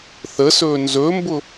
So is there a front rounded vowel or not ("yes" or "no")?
no